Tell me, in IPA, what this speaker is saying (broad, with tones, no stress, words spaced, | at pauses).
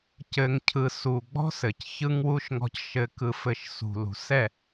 cɘ˨ŋcʰɯ˨ su˨ɡ͡bɔ̤˦sɘ˨c çɯ˦ŋwu˦ʃ ŋɔ̤˦cʃɘ˦ kɯ˦fɘ˦ʃ sṳ˨lṳ˨sɛ˦˨